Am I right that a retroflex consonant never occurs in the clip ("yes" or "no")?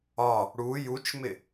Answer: no